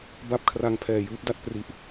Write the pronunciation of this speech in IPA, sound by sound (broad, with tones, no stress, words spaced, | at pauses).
ba˥˩p̚kʰra˧ŋpʰɛː˨˩ jɯː˦˥p̚da˥˩t̚ pri˦˥ʔ